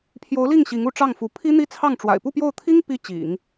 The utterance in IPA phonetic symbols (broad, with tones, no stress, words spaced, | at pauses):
pʰjo˧˥ʊ̯li˥˩ŋ ɕi˧˥ŋu˧˥ ʈ͡ʂɑ˥˩ŋfu˧˥ pʰi˥n̪i˥t͡sʰɑ˥˩ŋ ʈ͡ʂwa̰˨˩ɪ̯pu˥˧pjo˥˩ʊ̯ t̪ʰi˥ŋ pi˥ t͡ɕḭ˨˩˦ŋ